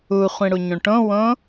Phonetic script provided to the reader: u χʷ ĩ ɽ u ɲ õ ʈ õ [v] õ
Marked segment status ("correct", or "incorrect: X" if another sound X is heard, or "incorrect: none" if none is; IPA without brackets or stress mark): incorrect: w